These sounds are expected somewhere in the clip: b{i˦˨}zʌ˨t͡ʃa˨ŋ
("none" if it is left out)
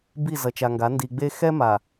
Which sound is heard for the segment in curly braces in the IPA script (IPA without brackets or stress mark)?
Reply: i˦˨